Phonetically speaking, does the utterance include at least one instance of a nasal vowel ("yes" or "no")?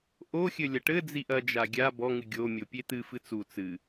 no